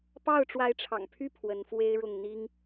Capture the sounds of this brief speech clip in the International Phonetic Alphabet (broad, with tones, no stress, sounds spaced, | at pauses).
p ɑ˥˩ ʊ̯ ʈ͡ʂ w a˧˥ ɪ̯ ʈ͡ʂʰ ɑ̰˨˩ ŋ pʰ y˥˩ pʰ w ə˧˥ n f w e˥ ɪ̯ ɻ ʊ˥˩ ŋ n̪ i˥ ŋ